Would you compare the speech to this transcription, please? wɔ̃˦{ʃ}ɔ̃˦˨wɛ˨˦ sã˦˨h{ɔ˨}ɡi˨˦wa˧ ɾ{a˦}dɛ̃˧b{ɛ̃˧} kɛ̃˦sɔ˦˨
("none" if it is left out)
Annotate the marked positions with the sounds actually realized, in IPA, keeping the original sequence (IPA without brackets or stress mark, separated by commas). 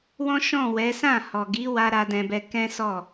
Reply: ʃ, ɔ˨, a˧, ɛ˧